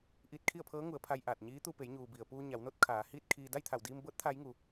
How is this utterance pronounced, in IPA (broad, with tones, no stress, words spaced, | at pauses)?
ʔiː˧t̚kʰi˥˨ə̯pʰɤː˧˥ŋu˩˧ə̯ pʰa˧j ʔaː˧˩t̚ɲiː˧˥t̪u˧ pe˩˧jɲuː˩ bi˩ə̯puː˧ɲa˩˧wno˧˥t̚ kʰaː˩˧hiː˥˨t̚kʰiː˧ da˥˨jt̪ʰa˧˩wdiː˧mbɤː˧˥t̚ t̪ʰaː˧˥jŋu˩